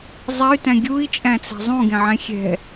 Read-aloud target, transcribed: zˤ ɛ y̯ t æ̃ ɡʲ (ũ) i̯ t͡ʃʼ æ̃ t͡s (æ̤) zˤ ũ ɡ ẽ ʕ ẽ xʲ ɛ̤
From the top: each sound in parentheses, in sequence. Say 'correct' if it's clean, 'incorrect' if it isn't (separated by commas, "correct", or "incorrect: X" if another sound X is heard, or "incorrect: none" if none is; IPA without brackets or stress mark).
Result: incorrect: u, correct